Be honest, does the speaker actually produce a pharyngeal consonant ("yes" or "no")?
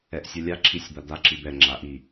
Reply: no